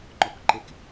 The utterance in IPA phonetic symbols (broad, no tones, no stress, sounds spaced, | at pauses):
ŋ͡ǃ ɔ k ǃ e k